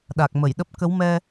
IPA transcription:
ɗa˨˩k̚mə˧˩jɗə˦˥p̚ kə˨˦wmɛ˧

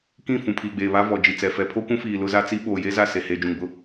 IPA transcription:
kĩ˦˨ fũ˨pʰiː˨ɡ͡beː˨βa˦ vɔ˨d͡ʒi˨t͡sɛ˨ fɛ˨pʰo˦kʷũ˦fiː˨ lʊ˦za˦t͡si˦ ɓoː˨je˦ za˦˨se˨ heː˨d͡ʒũ˨ŋbʊ˦

